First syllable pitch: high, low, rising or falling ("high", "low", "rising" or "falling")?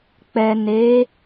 low